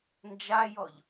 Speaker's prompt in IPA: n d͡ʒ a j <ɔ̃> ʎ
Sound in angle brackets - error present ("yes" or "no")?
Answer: yes